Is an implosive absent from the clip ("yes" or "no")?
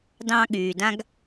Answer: no